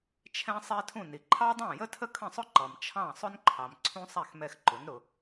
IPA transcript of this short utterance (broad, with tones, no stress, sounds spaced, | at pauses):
t͡ʃʰ ɛ̃˥ sˤ ɛ˥ tʰ ũ˥˩ n i˩ ǃʰ ɑ˥ dˤ æ̃˥˩ j ə˥ tʰ ə˥ kʰ ə̃˥˩ sˤ ʊ˥ ǃ ʌ˩ m t͡ʃʰ ɑ̃˥˩ sˤ ʊ˥ n ǃʰ ɑ˩ m ǀʰ ũ˥ sˤ æ˥˩ x m ɛ˧ x ǃ ʊ˩˥ n ɾ ʊ˩